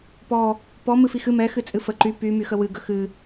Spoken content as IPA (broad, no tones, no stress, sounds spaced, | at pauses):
p ɔ | p ɔ m ɨ f i x ɨ m ɛ x ɨ t͡sʼ ɨ f ə ǃ y p y m y x ə w ɨ ɡ ə x ɨ